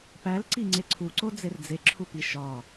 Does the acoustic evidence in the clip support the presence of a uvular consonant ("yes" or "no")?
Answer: no